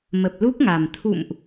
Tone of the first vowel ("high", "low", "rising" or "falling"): low